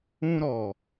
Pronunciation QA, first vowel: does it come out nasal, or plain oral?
nasal